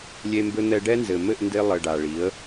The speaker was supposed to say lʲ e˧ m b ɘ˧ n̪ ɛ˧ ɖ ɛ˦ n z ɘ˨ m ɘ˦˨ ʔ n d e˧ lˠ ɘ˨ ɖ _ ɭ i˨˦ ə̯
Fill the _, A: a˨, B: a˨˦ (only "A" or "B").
A